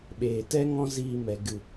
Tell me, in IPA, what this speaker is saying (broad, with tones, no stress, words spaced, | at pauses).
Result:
ɓeː˨tɛ˦ŋɔ̃˦ ziː˧mɛ˨ ɡɨ˨